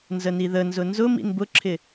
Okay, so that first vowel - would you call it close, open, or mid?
mid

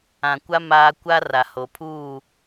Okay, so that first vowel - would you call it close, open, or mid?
open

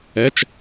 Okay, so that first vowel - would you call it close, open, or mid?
mid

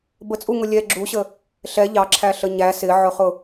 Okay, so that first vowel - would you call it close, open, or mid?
mid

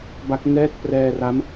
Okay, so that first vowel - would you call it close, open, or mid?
open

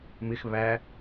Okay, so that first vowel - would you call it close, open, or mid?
close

